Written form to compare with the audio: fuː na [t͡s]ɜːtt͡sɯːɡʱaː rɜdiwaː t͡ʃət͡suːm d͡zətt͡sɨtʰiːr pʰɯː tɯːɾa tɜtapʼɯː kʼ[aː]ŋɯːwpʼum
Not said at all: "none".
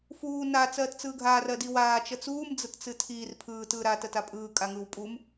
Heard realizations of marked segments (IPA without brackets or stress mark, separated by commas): t͡s, a